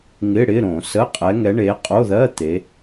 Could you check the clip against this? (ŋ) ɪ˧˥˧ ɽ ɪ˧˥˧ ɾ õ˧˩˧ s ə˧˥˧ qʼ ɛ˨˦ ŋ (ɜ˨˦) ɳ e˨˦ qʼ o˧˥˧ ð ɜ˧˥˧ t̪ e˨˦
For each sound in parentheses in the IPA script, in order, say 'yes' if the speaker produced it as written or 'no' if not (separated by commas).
yes, no